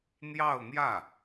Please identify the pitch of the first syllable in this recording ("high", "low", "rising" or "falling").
falling